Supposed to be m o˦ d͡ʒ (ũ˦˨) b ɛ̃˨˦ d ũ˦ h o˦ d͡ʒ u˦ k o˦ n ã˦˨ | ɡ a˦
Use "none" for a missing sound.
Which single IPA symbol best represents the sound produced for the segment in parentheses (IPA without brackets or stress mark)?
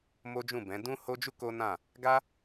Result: ũ˦˨